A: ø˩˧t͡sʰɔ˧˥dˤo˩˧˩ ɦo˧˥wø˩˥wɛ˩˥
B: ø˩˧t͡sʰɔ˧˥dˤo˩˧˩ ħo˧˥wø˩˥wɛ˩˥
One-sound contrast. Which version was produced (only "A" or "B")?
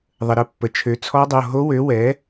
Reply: A